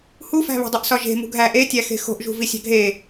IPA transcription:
hufæ̤βe̤dˤuʔ sɒʒe̤ mṳɡʱæ ʔetʲæxe̤ xo̤ʔʒṳ visʲæ̤ɡʱe

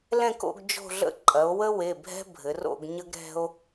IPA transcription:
lɛ̃˦˨ko̰˦˨ɡ d͡ʒo̤˦˨ɮə̰˦ ǃʼɐ˩˧o̯wə˦ we˩˧˩bʱɛ̤˦bʱɘ˩˧ro̰˦˨ɡ ɲə˦ɡɾɛ̤˦o̯

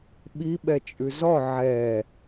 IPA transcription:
ɓi ɓɛt͡ʃʼʉzɔ ʕɛ

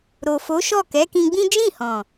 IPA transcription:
ɾo˨ fo˨˦ʃɔ˦˨ kɛ˨˦kĩ˧ɡ͡bĩ˦ d͡ʒĩ˦˨hɔ̃˨

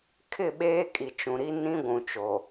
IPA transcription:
kʰɪ˦˨ɓeː˦kʼi˨ t͡ʃũ˨ɾi˦ nĩ˦ɡʷũ˨t͡ʃo˨

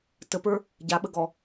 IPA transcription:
təpə˞ | ɟaɓəɡɔ

